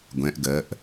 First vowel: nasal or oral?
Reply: nasal